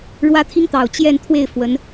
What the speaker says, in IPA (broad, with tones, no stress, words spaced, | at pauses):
ɻwä˥t̪ʰi˥ŋt̪ɑ˨˩ʊ̯ t͡ɕjɛ˥˧nt̪ʰwe˥˩ɪ̯ fwə˧˥n